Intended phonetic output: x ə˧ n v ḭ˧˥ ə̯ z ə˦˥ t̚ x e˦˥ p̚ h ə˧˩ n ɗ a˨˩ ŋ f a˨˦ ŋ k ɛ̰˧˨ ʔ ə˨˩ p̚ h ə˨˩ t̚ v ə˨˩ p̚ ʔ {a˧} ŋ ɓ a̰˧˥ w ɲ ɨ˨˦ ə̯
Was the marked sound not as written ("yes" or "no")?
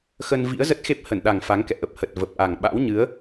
yes